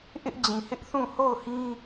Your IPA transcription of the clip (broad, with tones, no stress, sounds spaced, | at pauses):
ʔ ɪ˦ ʔ d͡ʑ ĩ˨ h ɪ˦ ʔ θ ũ˦˨ h o˦˨ ʊ̯ h ĩ˦